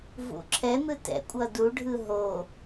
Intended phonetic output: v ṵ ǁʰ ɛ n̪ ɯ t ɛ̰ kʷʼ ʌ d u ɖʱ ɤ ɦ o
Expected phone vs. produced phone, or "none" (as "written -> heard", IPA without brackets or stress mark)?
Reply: ɤ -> ɯ